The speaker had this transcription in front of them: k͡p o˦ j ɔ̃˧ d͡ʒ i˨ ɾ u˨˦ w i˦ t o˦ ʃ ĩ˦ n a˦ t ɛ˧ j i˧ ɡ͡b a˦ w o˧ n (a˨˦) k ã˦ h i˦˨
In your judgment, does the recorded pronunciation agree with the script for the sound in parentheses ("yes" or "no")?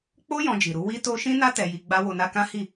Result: no